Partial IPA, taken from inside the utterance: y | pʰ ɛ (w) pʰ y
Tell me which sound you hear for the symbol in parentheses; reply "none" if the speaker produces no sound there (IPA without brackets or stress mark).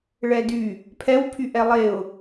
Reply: w